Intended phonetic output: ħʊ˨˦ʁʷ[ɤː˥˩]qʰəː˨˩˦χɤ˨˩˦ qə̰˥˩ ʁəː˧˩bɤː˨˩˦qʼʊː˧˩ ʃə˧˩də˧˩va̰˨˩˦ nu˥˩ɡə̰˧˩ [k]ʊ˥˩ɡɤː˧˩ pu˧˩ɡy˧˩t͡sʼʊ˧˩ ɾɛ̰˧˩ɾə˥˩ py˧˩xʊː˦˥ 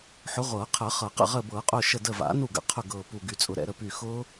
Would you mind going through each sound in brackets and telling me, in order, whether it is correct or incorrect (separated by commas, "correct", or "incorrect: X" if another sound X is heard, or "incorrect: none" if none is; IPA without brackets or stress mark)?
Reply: incorrect: ɤː˨˩˦, incorrect: qʰ